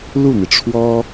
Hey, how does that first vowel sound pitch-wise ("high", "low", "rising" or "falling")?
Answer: falling